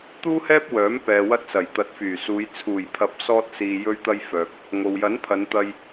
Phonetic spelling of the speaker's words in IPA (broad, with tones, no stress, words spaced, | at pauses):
t̪uː˥hɛː˥p̚wœː˨˥m pɛː˨wɐ˧t̚sɐ˨˩j t̪ɐ˨˥t̚fyː˨˩suː˨˧j t͡sʰuː˨˩jpʰɐ˨˥p̚sɔː˧t̚siː˨ jɵ˧ɥt̪ɐ˧jfœː˨k̚ | ŋo˨wjɐ˨˥npʰɐ˨˧nt̪ɐ˧j